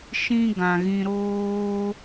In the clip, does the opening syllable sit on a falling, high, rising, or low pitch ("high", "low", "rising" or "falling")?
high